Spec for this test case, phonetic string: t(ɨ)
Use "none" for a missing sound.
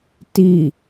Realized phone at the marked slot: i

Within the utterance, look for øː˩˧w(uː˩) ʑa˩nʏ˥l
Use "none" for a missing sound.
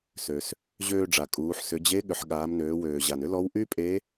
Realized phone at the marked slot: øː˩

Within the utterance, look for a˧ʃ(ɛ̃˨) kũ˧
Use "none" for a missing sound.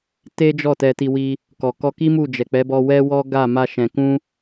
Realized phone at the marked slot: ɛ̃˨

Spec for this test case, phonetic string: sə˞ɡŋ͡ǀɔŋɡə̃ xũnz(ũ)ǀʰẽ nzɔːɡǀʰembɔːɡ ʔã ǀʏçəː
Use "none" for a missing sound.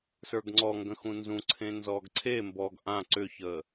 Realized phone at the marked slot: ũ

